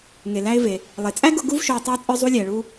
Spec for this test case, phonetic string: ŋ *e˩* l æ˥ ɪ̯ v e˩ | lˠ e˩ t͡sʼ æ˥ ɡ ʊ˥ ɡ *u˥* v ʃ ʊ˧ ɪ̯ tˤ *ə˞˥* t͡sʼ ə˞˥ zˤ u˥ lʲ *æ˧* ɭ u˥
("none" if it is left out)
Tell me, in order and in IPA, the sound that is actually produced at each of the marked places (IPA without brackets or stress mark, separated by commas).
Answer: e˩, u˥, ə˞˥, æ˧